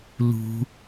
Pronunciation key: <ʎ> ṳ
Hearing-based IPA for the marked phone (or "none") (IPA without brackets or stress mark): l